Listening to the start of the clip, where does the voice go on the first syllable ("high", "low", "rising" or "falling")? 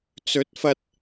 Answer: rising